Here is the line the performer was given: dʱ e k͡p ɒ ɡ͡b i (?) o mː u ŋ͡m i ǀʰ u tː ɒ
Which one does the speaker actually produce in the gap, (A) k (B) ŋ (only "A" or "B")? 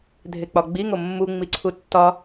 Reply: B